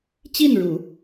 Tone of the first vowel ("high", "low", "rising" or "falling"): falling